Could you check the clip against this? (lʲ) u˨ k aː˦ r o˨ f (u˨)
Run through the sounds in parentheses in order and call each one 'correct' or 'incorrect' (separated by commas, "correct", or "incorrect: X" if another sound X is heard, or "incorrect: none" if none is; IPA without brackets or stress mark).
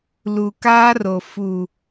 incorrect: l, correct